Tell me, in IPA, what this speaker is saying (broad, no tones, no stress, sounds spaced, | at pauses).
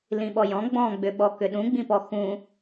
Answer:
l ĩ ɓ ɔ j ɔ̃ ɡ͡b ɔ̃ ɡ͡b ʏ ɓ ɔ k ʏ ɗ ũ ɡ͡b ĩ p ɔ x ũ